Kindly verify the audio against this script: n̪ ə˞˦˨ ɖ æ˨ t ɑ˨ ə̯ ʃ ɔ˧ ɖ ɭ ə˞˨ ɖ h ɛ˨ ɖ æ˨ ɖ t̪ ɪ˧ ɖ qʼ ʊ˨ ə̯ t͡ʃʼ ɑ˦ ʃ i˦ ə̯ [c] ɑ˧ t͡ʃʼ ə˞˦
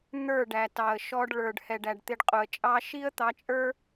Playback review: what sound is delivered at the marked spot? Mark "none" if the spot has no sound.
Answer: t̪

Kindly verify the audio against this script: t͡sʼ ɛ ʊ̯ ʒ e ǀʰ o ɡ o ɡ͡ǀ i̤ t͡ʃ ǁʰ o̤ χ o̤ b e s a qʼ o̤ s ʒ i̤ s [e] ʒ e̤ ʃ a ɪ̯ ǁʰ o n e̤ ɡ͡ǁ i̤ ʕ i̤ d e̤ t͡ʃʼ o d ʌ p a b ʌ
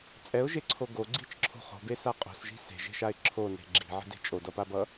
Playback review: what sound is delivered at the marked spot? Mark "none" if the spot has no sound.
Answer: e̤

